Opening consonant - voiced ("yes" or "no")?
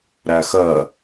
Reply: yes